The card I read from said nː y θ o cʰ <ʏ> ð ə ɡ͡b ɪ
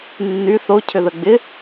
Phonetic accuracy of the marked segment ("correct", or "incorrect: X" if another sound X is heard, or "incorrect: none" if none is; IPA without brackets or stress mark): correct